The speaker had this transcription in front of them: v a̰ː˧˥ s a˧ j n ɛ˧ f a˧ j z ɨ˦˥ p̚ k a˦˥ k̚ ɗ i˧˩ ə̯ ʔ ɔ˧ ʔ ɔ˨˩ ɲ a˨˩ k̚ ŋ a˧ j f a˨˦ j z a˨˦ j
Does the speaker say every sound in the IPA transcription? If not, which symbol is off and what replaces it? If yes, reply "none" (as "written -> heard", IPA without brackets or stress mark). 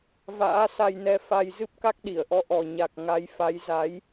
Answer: none